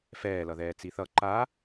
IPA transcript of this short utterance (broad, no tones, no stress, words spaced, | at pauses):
fɛːlʌðɛː t͡siθʌ ǃa